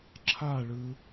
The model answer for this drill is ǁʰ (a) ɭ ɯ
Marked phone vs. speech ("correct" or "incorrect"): correct